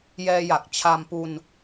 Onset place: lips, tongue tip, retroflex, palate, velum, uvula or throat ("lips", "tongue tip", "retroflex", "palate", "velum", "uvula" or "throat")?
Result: palate